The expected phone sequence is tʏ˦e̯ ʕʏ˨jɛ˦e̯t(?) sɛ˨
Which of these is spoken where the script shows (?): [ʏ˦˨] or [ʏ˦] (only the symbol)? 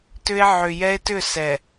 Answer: ʏ˦˨